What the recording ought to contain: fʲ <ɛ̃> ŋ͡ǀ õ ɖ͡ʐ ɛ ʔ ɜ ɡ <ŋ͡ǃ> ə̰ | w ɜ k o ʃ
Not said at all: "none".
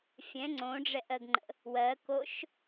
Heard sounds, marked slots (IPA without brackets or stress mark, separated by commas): ɛ̃, ŋ͡ǃ